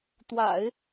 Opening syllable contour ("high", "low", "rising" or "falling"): low